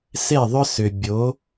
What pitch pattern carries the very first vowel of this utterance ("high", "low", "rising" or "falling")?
falling